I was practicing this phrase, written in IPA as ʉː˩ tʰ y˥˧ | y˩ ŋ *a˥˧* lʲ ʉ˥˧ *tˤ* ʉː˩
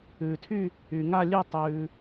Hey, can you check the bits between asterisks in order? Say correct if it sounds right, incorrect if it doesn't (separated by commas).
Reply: correct, correct